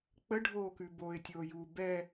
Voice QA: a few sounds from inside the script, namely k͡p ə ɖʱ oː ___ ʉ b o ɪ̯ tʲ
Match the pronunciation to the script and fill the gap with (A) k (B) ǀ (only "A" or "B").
A